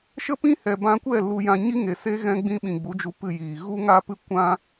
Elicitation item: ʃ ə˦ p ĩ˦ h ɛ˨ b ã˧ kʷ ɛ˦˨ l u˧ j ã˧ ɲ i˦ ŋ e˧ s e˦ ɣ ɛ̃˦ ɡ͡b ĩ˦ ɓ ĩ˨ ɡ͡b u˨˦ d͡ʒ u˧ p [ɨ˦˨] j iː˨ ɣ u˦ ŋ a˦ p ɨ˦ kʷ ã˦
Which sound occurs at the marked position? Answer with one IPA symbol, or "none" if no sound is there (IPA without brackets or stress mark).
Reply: ɨ˦˨